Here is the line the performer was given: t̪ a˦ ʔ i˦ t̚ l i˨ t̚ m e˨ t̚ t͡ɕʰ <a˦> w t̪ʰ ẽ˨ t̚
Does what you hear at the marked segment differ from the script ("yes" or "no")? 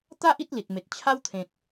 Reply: no